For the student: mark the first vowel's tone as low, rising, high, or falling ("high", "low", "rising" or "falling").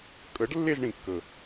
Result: rising